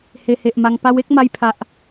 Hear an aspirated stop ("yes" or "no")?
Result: yes